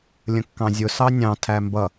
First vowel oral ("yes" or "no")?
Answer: no